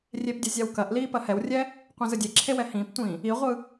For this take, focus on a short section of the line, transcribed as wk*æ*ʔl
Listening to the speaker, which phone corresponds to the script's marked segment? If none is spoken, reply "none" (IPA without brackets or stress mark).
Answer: ɐ